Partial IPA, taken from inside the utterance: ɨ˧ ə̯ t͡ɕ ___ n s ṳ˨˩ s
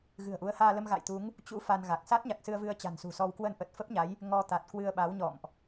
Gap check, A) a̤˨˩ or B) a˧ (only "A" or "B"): A